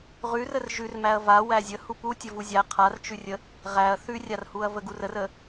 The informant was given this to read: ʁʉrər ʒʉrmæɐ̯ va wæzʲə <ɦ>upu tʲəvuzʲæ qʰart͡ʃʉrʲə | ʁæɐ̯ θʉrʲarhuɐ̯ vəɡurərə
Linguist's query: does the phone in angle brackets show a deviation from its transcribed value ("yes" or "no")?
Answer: yes